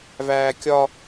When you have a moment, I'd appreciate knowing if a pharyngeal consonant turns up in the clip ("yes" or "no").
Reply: no